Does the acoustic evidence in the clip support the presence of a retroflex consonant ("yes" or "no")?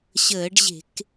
yes